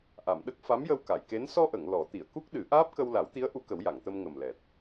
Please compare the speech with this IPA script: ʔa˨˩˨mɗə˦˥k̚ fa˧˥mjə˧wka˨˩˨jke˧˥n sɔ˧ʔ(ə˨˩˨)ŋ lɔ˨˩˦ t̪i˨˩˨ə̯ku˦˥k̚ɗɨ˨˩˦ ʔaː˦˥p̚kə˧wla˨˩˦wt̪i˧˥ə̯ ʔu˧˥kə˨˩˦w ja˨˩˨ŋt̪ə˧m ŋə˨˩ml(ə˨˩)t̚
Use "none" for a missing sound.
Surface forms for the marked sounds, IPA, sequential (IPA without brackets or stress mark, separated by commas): ə˨˩˨, ɛ˨˩